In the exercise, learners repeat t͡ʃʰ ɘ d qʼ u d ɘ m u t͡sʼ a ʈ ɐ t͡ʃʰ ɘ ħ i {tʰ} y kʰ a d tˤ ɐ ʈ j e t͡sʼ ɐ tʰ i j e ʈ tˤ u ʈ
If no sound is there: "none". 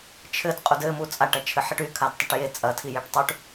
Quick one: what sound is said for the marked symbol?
ʈ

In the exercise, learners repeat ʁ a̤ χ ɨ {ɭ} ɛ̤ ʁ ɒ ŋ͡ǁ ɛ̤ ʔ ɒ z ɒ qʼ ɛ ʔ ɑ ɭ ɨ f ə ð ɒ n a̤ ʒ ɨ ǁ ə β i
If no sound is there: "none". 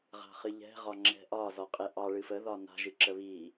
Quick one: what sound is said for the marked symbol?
ʎ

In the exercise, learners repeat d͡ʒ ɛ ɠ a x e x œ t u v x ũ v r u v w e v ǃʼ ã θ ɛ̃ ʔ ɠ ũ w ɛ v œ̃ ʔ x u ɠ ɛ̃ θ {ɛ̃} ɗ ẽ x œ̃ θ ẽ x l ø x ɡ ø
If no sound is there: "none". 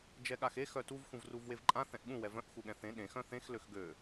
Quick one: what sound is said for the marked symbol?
ẽ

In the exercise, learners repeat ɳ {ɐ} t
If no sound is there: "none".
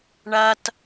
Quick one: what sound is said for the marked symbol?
ɐ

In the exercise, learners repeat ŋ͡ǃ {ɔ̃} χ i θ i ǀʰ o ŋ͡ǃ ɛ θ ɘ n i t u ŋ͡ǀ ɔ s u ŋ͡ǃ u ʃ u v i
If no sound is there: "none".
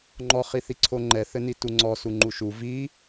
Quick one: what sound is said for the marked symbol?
ɔ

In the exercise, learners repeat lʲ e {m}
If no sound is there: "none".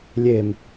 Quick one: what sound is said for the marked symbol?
m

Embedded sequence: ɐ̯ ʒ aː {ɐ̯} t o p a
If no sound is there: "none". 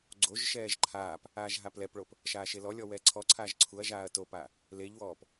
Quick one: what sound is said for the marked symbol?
ɐ̯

